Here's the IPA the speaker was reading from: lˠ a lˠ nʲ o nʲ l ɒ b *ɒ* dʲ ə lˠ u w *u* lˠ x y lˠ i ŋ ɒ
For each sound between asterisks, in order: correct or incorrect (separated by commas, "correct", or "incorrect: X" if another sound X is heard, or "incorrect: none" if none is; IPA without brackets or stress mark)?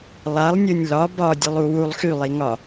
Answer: correct, correct